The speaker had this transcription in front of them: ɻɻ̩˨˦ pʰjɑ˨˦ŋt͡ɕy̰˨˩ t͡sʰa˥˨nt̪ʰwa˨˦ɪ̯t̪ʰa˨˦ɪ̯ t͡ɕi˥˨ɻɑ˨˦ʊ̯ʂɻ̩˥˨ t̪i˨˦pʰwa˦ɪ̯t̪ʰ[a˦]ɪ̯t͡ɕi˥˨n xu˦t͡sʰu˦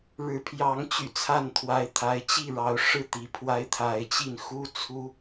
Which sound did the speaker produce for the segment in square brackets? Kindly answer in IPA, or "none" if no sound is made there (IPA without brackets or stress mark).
a˨˦